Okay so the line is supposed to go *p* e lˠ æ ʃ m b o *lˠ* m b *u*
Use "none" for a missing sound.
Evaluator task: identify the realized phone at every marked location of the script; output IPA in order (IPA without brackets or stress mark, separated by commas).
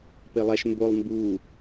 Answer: p, lˠ, u